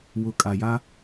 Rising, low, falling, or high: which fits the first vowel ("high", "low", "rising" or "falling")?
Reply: low